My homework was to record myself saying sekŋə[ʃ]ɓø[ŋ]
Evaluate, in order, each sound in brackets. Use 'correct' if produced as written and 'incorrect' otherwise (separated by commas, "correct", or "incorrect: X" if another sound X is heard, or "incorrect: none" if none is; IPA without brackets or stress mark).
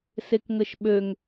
correct, correct